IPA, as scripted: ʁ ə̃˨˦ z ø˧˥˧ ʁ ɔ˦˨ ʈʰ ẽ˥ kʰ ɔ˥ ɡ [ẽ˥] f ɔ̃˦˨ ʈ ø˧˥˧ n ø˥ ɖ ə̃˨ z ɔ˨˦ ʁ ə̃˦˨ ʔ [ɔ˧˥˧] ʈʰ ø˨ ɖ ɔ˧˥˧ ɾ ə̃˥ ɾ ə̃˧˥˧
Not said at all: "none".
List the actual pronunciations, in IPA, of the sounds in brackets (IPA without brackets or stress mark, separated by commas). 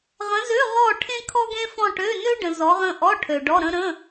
ẽ˥, ɔ˧˥˧